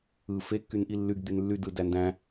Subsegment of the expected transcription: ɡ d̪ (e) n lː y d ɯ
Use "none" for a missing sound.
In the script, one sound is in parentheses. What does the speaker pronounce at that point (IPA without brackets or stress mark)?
y